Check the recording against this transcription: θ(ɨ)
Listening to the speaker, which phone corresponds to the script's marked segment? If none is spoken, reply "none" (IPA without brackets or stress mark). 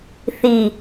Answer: i